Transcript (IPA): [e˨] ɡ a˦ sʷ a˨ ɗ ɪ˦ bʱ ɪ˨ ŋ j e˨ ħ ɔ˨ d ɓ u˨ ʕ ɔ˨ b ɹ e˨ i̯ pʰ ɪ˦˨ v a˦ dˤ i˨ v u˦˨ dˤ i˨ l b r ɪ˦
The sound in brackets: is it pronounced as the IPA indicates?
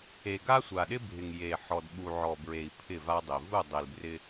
yes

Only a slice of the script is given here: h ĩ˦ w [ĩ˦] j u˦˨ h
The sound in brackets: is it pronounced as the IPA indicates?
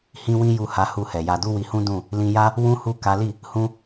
yes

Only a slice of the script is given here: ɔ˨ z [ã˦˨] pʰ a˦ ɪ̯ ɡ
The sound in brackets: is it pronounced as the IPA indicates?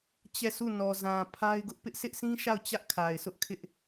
no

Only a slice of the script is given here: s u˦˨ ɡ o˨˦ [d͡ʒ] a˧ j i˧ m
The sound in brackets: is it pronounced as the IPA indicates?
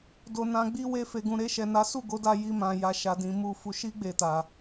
no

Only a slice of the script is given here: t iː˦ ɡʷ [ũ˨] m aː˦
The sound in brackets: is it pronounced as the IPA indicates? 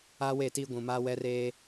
yes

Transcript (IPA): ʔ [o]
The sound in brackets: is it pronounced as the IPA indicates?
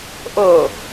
yes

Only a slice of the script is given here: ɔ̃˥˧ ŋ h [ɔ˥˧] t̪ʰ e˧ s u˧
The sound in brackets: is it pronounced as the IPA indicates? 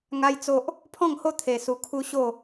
no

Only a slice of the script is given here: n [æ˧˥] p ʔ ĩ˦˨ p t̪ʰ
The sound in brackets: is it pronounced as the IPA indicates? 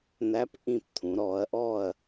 yes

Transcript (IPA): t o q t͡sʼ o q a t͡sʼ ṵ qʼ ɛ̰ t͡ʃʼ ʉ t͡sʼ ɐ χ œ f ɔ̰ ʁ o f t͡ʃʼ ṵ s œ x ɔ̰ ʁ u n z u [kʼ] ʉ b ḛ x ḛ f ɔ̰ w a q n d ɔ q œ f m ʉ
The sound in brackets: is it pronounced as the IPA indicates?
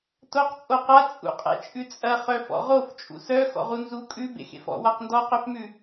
yes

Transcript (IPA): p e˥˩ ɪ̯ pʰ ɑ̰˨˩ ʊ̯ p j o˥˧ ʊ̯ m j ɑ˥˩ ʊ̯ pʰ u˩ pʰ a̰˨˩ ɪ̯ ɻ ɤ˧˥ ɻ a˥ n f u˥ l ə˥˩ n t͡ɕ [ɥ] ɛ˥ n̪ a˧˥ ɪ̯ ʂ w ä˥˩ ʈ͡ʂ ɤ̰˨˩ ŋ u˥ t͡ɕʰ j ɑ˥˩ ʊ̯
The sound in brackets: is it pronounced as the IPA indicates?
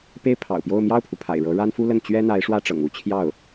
yes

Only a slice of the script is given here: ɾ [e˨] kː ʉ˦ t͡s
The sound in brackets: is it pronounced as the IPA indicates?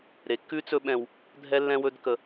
yes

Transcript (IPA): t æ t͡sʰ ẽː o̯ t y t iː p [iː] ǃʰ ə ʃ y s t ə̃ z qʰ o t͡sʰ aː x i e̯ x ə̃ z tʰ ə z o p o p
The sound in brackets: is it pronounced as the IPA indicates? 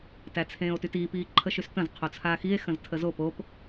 yes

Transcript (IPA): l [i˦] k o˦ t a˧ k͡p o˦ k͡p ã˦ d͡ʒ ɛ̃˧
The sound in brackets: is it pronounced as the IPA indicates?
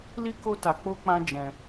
yes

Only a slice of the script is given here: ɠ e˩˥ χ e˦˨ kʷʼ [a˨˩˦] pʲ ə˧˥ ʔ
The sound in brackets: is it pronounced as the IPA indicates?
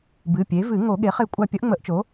no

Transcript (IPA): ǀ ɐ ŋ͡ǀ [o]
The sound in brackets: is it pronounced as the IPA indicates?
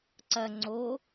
yes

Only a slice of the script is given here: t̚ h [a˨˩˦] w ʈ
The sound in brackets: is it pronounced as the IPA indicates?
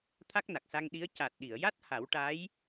yes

